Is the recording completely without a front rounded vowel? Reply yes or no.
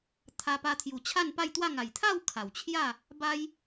yes